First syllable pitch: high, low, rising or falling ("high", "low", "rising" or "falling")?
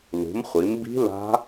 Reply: rising